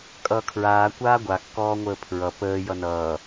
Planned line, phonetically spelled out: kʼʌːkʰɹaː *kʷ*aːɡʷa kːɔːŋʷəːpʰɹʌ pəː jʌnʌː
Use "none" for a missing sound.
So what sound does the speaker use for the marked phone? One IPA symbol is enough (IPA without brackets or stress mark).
kʷ